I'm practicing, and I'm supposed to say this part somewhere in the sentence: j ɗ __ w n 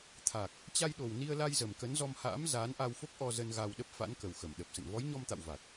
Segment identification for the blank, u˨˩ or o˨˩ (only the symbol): o˨˩